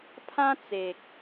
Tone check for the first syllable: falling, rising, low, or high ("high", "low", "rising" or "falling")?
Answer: high